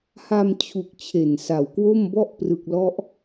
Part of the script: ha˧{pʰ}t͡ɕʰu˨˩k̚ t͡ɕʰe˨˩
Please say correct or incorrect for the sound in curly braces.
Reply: incorrect